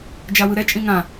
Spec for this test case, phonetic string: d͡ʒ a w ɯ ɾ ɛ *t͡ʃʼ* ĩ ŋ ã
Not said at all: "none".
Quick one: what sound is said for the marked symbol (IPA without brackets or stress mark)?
t͡ʃʼ